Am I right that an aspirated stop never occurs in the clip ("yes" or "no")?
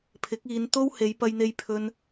no